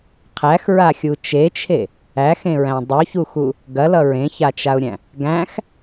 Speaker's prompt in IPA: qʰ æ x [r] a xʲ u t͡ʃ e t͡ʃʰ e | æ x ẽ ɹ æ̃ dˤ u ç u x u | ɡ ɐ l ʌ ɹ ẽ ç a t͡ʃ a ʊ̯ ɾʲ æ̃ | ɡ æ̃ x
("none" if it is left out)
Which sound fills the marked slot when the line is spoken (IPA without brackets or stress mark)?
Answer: ɹ